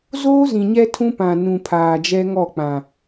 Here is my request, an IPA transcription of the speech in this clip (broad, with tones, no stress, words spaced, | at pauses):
zoː˦zĩ˨ɲɛ˦ tʰũ˦pã˨nũ˨ pʰaː˨d͡ʒɛ˦ŋɔ˦˨k͡pã˨